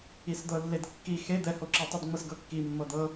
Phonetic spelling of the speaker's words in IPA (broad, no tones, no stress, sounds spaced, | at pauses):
i s d̪ ɤ lː e d kː i x e d̪ ɛ h o ǁ i tˤ i d ŋ͡m ɤ s ɡ ɤ kː i mː ɤ d̪ ɤ